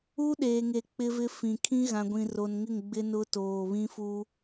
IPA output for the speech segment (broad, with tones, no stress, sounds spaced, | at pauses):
u˦ ɗ eː˨ ŋ e˨ k͡p ɪ˦ v ɪ˦ f ĩ˨ kʰ ĩ˦ ɣ ã˨ ɡʷ ĩ˨ r o˨ n ŋ ɪ˦˨ ŋ ɡ͡b ɪ˦ n ʊ˦ t oː˨ β ĩ˦ f u˦